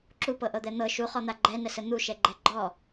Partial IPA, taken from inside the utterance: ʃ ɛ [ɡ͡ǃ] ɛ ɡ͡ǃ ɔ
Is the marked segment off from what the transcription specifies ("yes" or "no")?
no